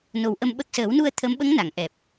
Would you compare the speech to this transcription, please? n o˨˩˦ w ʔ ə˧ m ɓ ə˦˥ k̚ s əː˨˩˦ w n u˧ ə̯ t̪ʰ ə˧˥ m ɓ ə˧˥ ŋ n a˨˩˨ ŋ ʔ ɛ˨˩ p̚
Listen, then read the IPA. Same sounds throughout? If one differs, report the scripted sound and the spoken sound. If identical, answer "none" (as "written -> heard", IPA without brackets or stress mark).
none